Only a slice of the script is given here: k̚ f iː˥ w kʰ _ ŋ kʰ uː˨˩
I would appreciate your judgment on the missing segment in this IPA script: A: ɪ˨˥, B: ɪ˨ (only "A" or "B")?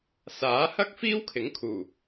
A